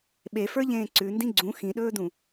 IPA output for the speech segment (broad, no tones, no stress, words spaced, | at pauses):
ɓefə˞ʎẽː ǀʉndĩ ɡ͡ǀũ xĩɗɵːdũ